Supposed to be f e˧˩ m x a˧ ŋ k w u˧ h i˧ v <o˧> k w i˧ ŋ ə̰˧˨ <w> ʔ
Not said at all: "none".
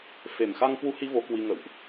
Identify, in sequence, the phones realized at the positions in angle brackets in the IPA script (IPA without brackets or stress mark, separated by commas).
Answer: o˧, w